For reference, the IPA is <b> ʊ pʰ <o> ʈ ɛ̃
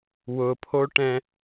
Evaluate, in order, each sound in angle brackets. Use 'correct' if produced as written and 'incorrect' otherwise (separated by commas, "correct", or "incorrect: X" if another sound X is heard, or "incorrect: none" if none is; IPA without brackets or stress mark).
incorrect: w, correct